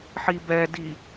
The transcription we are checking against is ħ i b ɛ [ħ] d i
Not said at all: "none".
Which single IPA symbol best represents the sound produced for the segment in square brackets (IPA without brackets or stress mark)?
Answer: none